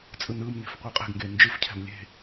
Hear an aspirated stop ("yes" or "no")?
yes